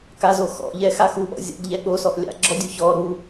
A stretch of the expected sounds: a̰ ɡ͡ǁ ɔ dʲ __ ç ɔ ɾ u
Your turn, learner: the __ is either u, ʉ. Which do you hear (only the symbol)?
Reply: u